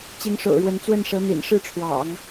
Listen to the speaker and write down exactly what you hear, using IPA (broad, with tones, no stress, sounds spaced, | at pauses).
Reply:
t͡ɕ i˧˥ ŋ ʂ o̰˨˩ ʊ̯ ɻ w ə˧˥ n t͡s w ə˥˩ n ʂ ɤ˧˥ n̪ ḭ˨˩ n ʂ ɻ̩˥˩ ʈ͡ʂʰ w ɑ̰˨˩˦ ŋ